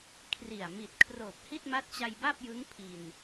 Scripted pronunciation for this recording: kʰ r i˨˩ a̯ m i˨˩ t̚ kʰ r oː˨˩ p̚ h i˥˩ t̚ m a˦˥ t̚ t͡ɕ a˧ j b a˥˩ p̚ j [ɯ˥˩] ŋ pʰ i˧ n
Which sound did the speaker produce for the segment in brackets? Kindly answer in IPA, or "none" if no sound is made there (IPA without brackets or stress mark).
ɯ˦˥